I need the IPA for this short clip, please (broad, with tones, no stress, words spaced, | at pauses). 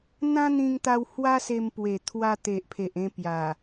n̪ã˦n̪ĩ˧ŋt̪a˧w hwa˦se˧mpwe˨˩ t̪ʰwa˧t̪e˨ʔpʰe˨ʔ ẽ˧pja˨˩